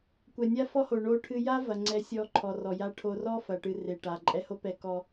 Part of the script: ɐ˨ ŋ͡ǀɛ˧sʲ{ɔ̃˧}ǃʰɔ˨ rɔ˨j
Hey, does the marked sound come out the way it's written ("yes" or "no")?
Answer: no